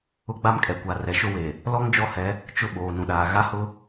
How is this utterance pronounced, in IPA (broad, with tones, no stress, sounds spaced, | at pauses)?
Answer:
ʊ˦ ɡ͡b a˦ m kʼ ɛ˨ kʷ a˨ r ɛ˨ ʃ ʊ˦ w e˨ | l ɔ˦ ŋ d͡ʒ ɔ˦ h ɛ˨˦ | t͡ʃ ʊ˦ ɓ oː˨ n ũ˨ ɗ aː˨ ɣ a˦ h ʊ˦